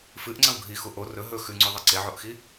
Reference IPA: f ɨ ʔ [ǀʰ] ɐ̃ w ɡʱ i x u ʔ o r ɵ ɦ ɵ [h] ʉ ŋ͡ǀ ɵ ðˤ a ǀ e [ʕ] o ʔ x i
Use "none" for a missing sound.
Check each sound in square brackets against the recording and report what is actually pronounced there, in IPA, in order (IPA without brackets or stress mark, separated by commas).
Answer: ŋ͡ǀ, x, ʕ